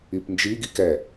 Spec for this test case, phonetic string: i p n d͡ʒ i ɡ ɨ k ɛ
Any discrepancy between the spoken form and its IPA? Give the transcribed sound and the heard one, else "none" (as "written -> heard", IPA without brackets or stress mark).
ɨ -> i